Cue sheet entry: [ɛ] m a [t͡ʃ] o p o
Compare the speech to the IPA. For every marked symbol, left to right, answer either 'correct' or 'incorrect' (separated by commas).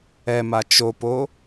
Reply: correct, correct